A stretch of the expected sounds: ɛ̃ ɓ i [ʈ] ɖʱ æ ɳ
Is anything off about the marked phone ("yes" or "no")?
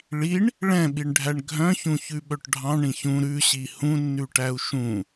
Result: yes